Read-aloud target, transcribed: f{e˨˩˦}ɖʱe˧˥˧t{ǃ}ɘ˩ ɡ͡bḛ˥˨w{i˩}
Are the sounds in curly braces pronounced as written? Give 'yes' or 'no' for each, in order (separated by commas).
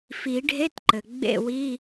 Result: no, yes, no